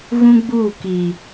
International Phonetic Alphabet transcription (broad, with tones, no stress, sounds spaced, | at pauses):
ɣ ũ˦ ɡ͡b uː˦˨ k iː˨